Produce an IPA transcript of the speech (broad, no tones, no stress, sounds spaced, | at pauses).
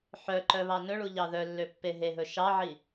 ħ œ ǃ œ β ɑ n ɵ ɭ u ʎ ɑ ð œ lː ø pː e ɦ e ɦ ɵ ʃ ɑ ʕ i